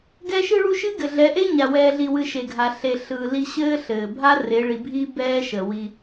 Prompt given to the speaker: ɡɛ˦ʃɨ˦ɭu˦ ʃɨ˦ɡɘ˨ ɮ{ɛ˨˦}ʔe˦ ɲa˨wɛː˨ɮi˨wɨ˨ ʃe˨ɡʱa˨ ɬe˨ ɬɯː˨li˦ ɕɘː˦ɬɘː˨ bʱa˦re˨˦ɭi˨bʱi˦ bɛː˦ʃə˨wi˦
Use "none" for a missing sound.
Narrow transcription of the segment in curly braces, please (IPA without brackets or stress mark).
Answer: ɛ˨˦